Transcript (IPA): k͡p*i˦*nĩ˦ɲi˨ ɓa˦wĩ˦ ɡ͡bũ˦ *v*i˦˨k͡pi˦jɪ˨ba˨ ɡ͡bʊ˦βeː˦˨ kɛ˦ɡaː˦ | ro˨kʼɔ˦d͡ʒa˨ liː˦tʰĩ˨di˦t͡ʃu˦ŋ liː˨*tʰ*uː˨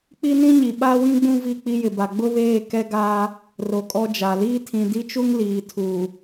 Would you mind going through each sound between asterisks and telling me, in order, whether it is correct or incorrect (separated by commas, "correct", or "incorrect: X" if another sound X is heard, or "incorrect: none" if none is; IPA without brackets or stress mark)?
correct, correct, correct